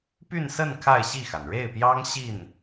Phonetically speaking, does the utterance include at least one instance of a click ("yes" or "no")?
no